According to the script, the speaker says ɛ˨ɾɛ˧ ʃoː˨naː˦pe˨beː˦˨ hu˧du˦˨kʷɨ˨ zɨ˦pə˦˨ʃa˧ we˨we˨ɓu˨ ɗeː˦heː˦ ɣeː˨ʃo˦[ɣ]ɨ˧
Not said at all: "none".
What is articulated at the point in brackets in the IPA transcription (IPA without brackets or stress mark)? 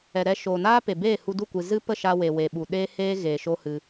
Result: h